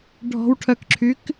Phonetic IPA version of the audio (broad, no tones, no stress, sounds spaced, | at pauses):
ɖʱ ɔ̤ w ʈʰ œ k ǁʰ y k